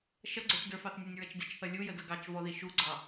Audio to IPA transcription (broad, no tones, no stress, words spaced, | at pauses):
ʃʌɡ͡ǀə˞t͡ʃ də˞fɑθnʲɛnʲɹʌt͡ʃ dɪt͡ʃθʌ lʲujədʌ ɡɑt͡ʃvɔði ʃuɡ͡ǀɑ